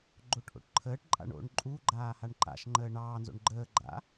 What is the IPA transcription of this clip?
ɡ͡ǃoʈʔo̰ʈǃʰəːʈǃʼa̰ɳ o̰ɳ ǃʼuɡ͡ǃaː haɳǃa̰ʃŋ͡ǃəː ɳɑːnzo̰ɳ ɡ͡ǃəːɡ͡ǃa̰

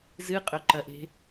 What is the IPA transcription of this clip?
zɨqʼɵǃɐʔe̤

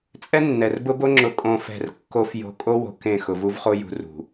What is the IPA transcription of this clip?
t͡sʼɛ˦nːɛ˨rbʊ˦bo˦ ŋ͡ǁʊ˨ kʼõ˨fɛ̤˨r kːo˦f jo̤˦ kʼo˦wo̤˨ kẽ˦˨xʊ˨vu˦vχo˦ jṳ˦rṳ˨

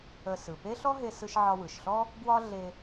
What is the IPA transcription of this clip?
ə˧ sɯ˩ pe˥ɬɔ˥ɦe˧sɯ˧ʃ ʕɒ˧wɯ˩ʃɬɔ˥ | ɡwɒ˥ ɮe˧

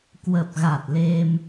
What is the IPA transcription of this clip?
kwə˨˩p̚ɣa˨˩t̚le˧m

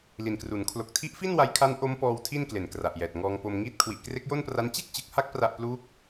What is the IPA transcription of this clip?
li˨˩nkru˨˩n kʰlo˨˩k̚tʰi˦˥ʔfi˥˩n wa˦˥jkʰa˦˥n ʔo˦˥mpɔː˧w tʰi˥˩nkle˨˩nkra˨˩ʔjɛː˨˩t̚ ŋɔː˧ŋpo˧mŋiː˥˩t̚ kʰwi˨˩ʔkre˦˥k̚jo˥˩npra˦˥n t͡ɕe˥˩k̚t͡ɕɯ˨˩k̚ha˦˥k̚ pra˥˩ʔ pluː˦˥k̚

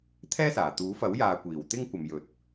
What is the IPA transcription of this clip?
t̪ʰɛː˥saː˨˩ t̪uː˨˥fɐ˨˥wjaː˨ kʷiː˨˩wt̪ɪ˥ŋ kʷɐ˨mjɵ˨˥t̚

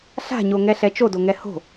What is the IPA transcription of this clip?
ɬa̤ɲoŋɛ ɬɛt͡ʃodoŋɛ ho̤

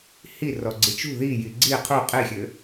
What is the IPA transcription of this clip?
hi rɔɡ͡ǀit͡ʃṳ ðiji ɡ͡ǀi qʰu qʼixʲɘ

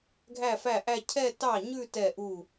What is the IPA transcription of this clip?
ɡʱæ˥˩fæ˥˩ʔæ˥˧ cʰɛ˥˧tɑ˥˩ɲʉ˥˧ tɛ˥˩ʔu˥˩

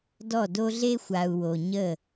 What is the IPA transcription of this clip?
dɔ˦˨do˦ɮe˦ xʷa˨u̯wo˨ ɲə˦˨

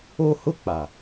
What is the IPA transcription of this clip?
o˦ hʊ˦ k͡pa˨

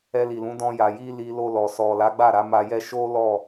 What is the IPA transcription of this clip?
ɛ˧li˨lũ˨˦ dɔ̃˧ja˨ji˧ li˧lo˧lɔ˨ sɔ˨la˨˦ɡ͡ba˦˨ ɾa˨˦ma˧jɛ˦ ʃo˦ lɔ˦˨

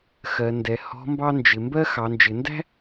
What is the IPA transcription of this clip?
xɜ˩˧ndɛ˩˧ hɔ̤˧˥mbɑ˥nd͡ʒɪ˩˧ mbɜ˥ xɑ˩˧nd͡ʒɪ˩˧ndæ̤˥

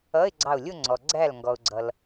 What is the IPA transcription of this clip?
ʌ˧˥˧ɪ̯ɡ͡ǀɑ˧˩ʊ̯lʲʊ˥˧ŋ͡ǀɔ˩ ɡ͡ǀæ˧˩l ŋɡɔ˩ʊ̯ɡ͡ǀʌ˩l

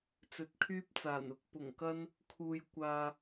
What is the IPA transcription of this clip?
t͡sɵ˨˥t̚kʰyː˥p̚t͡saː˨˩nʊ˧k̚ pʊ˨˩ŋkɐ˥n | kʰuː˧jkʷaː˧

